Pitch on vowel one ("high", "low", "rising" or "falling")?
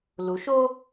rising